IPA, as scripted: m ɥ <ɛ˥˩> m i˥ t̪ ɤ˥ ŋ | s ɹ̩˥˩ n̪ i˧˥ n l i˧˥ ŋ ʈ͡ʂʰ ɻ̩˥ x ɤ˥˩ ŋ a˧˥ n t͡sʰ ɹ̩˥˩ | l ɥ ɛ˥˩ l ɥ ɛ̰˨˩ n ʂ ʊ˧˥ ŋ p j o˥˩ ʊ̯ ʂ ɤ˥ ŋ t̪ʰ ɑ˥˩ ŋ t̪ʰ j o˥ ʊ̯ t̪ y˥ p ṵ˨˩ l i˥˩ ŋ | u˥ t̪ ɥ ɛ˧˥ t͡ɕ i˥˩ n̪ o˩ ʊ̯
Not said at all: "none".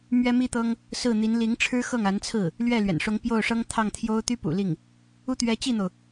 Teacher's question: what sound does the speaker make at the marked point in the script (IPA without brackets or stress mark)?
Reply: ɛ˥